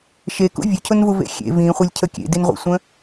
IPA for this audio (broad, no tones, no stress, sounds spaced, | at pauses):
ʃ e k ṵ vʲ ʊ cʰ ʊ n v u v ḛ xʲ ḛ v ĩ χʷ e lʲ cʰ ə kʲ ḛ d i n ʁʷ ḛ sʷ ə̃